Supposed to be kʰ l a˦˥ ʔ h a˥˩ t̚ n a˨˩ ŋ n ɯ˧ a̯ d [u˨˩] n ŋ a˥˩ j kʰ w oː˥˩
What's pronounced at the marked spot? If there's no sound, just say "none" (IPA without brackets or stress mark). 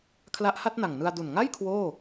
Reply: u˨˩